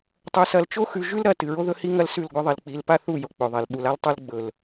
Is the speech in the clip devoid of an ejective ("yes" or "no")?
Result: yes